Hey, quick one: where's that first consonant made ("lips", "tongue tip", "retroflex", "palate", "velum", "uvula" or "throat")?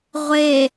uvula